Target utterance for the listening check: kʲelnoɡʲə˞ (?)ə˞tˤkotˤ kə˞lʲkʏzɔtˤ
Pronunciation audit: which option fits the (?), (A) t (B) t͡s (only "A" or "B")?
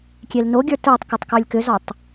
A